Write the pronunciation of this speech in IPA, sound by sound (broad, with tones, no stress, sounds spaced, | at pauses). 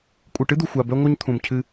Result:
kʷʼ ɨ˨ ʈ ɨ˦ d̪ u˨ xʷ a˨ b œ˧ ŋʷ œ˧ ɲ t̪ʰ ũ˨ m cʰ ɨ˧